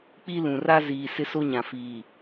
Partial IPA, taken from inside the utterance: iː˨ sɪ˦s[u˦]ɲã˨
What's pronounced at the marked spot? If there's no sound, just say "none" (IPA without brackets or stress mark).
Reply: o˦